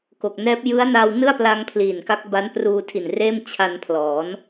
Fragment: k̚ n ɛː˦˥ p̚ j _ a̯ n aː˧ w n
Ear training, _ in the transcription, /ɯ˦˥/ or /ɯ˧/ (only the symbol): ɯ˦˥